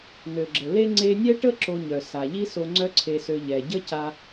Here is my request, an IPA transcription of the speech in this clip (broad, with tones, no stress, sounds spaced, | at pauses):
n ø˩ ɡ͡ǁ ə˩ l e˧ ŋ͡ǀ e˧ nʲ ɛ˥ ʈ ə˥ ǁ o˧ ɲ œ˩ s a˩ ʎ i˥ s o˧ ŋ͡ǀ œ˥ ǀʰ e˧ s ø˧ ʎ ɛ˩ ɟ ə˥ c a˧